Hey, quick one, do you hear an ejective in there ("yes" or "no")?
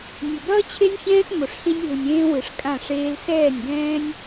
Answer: yes